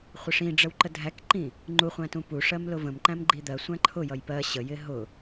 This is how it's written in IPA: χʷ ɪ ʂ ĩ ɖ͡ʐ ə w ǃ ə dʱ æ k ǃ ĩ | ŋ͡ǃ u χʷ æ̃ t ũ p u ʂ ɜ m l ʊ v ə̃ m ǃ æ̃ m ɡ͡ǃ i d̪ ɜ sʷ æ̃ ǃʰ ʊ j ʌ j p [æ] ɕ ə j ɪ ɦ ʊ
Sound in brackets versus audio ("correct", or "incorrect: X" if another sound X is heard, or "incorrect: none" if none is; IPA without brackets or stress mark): incorrect: ɜ